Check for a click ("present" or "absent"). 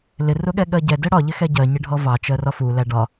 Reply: absent